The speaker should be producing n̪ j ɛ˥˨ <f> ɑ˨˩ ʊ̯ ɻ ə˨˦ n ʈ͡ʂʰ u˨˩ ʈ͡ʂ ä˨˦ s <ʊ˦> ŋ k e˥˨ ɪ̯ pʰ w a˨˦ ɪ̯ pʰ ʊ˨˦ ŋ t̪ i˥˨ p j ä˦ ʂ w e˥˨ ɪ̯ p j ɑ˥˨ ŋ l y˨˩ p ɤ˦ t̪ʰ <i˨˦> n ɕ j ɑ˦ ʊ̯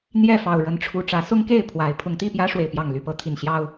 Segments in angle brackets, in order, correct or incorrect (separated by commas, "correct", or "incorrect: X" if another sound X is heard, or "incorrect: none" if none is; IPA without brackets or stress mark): correct, correct, incorrect: i˨˩